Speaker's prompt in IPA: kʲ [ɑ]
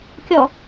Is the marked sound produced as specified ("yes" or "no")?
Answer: no